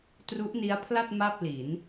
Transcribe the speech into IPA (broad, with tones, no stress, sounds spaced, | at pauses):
t r u˦˥ ʔ n i˦˥ a̯ pʰ l a˥˩ t̚ m a˥˩ p̚ l i˩˦ n